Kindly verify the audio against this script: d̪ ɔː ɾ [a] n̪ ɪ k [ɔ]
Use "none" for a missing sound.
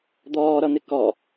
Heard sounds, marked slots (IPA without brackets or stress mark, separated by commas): ʌ, ɔ